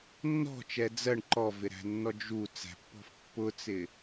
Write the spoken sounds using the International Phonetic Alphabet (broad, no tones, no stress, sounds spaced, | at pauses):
nː ɔ̤ t͡ʃ ɛ d͡z ɜ ɳ ǃ ɔ v ɪ ɾ æ̤ nː ɔ d͡ʒ u t͡s æ̤ pː ɔ̤ f pː ʊ t͡s ɪ